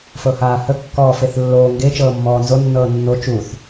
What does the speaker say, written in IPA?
f ɤ h aː h ə kː ɔː f e θ lː oː ŋ ɡ e t͡ʃ ɤː mː ɔː n z o nː ɤː nː o t͡ʃ u θ

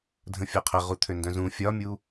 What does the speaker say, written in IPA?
dʱ ə̃ fʲ ɒ qʰ ə ʁ u t̪ʰ ø n d œ̃ z ũ fʲ ɒ mʲ u

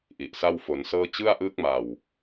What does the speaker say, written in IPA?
ʔ i˨˩ ʔ s a˥˩ w f o˩˦ n s ɤː˥˩ t͡ɕ ɯ˥˩ a̯ ʔ ɯː˦˥ k̚ m a˨˩ w

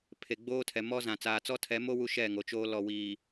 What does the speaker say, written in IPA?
pʰ e˨ ɡ͡b oː˦ tʰ ɛ˨ m ɔ˦ z ã˨ t͡s aː˨ t͡s ɔ˦ tʰ ɛ˨˦ m o˦ w u˦ ʃ ɛ˦˨ ŋ o˨ t͡ʃ oː˦ l ɔ˨ w iː˨

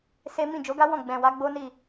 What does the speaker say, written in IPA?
s e˦ m ĩ˦˨ d͡ʒ o˨˦ ɡ a˦ w ɔ̃˦˨ ɡ͡b ɛ̃˨ w a˨˦ ɡ͡b o˦ n i˦˨

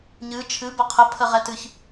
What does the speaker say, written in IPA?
ɲ ɨ t͡ʃʰ ɨ b ə qʰ ə pʰ ə ʁ ɛ t ɨ ç

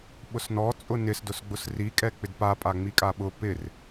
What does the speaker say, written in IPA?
ɓ ʊ s n ɔ t͡sʼ ʊ n ɪ s d ʊ s ɡ͡b ʊ s r i kʼ ɛ k͡p ɪ d p a pʼ a ŋ͡m i kʼ a ɓ ʊ p ɪ r

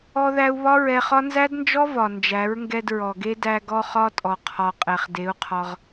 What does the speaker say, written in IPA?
ɔ˧ ð æ˧ u̯ β ɒ˦ ɹ ɛ˧ χ ɒ˦ n z æ˦ d n d͡ʒ ɔ˦ v ɒ˨ n d͡ʒ æ˨˦ ɹ ŋ ɡ ɛ˧ d ɹ ɔ˨ ɡ e˦ d æ˧ ɡ ɔ˦ χ ɒ˦ tʼ ɔ˨ qʰ ɒ˨ qʼ ɛ˨ χ d e˨˦ u̯ qʰ ɒ˧ ʁ

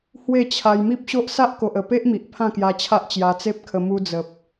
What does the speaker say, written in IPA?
h w e˥˧ t͡ɕʰ a˧ j m i˦ p̚ ɕ o˦ ʔ s a˦ ʔ k o˨ ʔ ə˨˩ p e˦ ʔ m i˨ ʔ pʰ ã˥˧ k j a˧ t͡ɕʰ a˦ ʔ t͡ɕ j a˧ t͡s e˦ p̚ kʰ ə˧ m u˧ d͡z ə˨ p̚

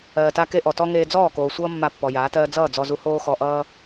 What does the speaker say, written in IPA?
ɜː˨ t a˦ k e˦ ʔ ɔ˨ t ɔ˦ ŋ eː˧ d͡z ɔː˦˨ k oː˨ sʷ ʌː˦ mː a˧ pː ɔ˨ j aː˨˦ t ɜː˦ d͡z ʌː˦˨ d͡z ɔ˧ z u˧ h oː˦ x ɔ˧ ʔ ʌː˦

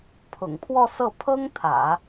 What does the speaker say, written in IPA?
pʰ ʊ̰˨˩ ŋ pʰ w ɔ˥˧ s ɤ˥˩ pʰ ɤ˥ ŋ t̪ʰ ä̰˨˩˦

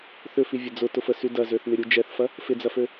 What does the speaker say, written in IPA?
θ ʏ f i vʲ ɐ d͡z ʊ t ʊ f ə s y d ɐ z ø θ n ɪ ɾʲ u d͡ʒ ɛ θ f ɐ | f ɪ d͡z ɐ f ø

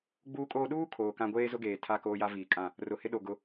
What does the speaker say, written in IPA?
ɡ͡b uː˦ kʼ oː˦ ɗ uː˦ kʰ oː˨ k ã˦ ɡʷ eː˦ z ʊ˦ ɡ eː˨ tʰ a˦˨ k oː˦ j a˦ v iː˨ kʼ ã˦˨ | r ʊ˨ h ɪ˦ ɗ o˨ ɡ ʊ˦

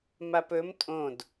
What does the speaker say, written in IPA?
m a p ɵ m tʼ õ d

